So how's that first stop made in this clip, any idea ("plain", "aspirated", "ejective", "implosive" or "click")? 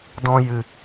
plain